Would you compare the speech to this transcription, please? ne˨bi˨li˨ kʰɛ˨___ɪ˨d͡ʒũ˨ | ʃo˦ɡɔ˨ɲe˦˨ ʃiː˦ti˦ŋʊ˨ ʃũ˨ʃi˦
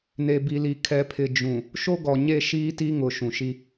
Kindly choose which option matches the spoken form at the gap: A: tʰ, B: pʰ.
B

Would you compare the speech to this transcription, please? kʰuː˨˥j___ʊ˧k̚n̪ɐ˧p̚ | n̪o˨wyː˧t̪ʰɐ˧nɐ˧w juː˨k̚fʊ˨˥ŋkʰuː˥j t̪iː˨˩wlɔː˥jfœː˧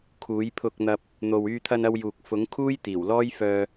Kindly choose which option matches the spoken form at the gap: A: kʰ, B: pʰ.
B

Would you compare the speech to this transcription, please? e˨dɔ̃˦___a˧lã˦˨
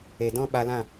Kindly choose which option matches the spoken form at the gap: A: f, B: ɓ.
B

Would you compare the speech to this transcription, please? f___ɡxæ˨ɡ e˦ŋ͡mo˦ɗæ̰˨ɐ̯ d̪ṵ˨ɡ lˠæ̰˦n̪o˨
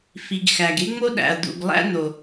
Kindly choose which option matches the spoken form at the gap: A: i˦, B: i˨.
B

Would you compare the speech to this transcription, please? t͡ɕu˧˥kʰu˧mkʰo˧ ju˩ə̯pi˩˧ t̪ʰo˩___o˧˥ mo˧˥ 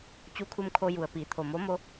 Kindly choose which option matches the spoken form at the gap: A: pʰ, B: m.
B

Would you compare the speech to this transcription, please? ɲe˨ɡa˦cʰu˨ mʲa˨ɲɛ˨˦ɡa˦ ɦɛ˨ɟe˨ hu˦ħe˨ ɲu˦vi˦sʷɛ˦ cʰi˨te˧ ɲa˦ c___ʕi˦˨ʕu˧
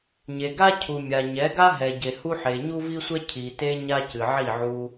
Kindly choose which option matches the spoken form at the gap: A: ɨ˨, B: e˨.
A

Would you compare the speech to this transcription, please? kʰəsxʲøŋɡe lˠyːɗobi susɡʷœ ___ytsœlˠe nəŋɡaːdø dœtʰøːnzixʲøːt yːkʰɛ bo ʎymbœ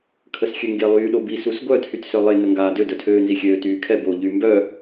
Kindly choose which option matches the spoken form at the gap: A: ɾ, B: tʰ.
B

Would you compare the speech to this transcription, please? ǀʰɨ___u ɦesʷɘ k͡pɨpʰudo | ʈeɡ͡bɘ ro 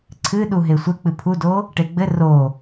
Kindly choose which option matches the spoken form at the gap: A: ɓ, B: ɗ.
B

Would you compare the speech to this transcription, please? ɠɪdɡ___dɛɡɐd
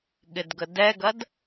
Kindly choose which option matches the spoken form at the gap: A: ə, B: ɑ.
A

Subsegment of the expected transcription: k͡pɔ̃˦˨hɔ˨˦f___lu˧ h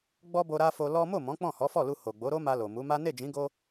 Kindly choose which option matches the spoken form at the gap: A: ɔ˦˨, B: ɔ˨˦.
A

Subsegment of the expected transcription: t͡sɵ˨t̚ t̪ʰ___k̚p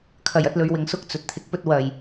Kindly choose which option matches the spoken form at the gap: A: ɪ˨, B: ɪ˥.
A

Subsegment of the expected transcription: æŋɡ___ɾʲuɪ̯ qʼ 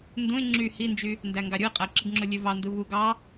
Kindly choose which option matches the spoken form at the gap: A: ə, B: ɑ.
B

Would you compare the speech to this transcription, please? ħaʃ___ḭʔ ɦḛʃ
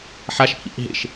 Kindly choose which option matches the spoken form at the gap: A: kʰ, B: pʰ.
B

